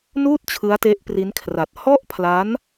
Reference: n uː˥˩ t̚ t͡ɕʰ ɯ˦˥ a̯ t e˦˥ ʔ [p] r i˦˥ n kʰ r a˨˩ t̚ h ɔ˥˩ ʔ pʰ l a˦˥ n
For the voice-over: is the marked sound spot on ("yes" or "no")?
yes